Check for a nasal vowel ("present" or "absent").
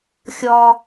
absent